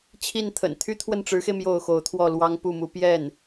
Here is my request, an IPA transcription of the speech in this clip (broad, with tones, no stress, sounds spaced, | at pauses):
t͡ɕʰ i˥˩ n t̪ʰ ə̰˨˩ n t̪ʰ y˥ t̪ʰ w ə˥˩ n ʈ͡ʂ ɻ̩˧˥ x e˧ ɪ̯ m j o˥˩ ʊ̯ x o˧˥ ʊ̯ t̪ʰ w ɔ˥˩ l w ɑ˥ ŋ p u˥˩ m u˧˥ p j ɛ˥˩ n